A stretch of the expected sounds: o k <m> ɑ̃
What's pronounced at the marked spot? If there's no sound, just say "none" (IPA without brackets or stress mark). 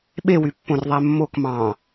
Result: m